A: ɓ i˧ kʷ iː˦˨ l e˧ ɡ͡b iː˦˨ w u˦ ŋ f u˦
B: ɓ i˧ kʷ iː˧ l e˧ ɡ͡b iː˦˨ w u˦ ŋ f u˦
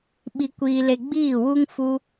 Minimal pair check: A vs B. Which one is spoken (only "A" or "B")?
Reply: B